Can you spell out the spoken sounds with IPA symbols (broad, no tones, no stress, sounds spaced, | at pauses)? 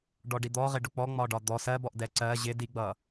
ɖ ɔ ɖ i d̪ ɔ ʁ ɪ ɖ ʊ k͡p ɔ ŋ͡m ɒ ɖ ɒ d̪ ɔ s ɜ b ɔ ʔ d ɛ ǀ ɜ ʑ ɪ d i ɡ͡b ʌ